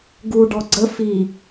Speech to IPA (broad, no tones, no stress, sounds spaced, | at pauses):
ɡ u ɖ ɔ ɡ͡ǀ ə f i